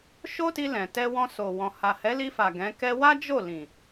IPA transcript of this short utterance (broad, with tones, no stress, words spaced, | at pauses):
ʃo˦ti˧lɛ̃˨ tɛ˧wɔ̃˧so˨wɔ̃˨ ha˨hɛ˨˦li˧fa˨ ɡɛ̃˨˦kɛ˦ wa˦d͡ʒo˦˨ lĩ˨